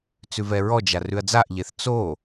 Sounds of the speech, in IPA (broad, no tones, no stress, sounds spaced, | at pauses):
t͡s ʉ v ɛ ɹ ɔ d͡ʒ a r ʉ ɐ̯ d͡z a ʔ ʎ e θ t͡s o